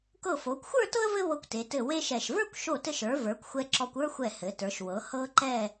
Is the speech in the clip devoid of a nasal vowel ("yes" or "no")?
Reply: yes